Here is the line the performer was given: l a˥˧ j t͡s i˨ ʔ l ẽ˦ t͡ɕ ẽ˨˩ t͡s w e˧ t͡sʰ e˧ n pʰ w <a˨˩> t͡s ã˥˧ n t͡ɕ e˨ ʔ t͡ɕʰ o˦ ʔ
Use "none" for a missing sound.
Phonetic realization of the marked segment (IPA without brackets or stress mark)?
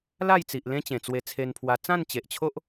a˧